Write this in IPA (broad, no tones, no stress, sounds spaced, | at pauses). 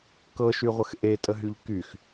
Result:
k ɤ ʃ y ʁʷ ə x ʔ e tʼ ə ɦ y ʎ k y x